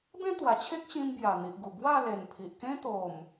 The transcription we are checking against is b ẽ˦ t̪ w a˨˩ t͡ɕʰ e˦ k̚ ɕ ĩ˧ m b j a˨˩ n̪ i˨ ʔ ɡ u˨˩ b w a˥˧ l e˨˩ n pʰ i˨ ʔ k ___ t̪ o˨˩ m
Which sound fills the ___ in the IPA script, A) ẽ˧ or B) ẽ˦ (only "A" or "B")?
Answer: B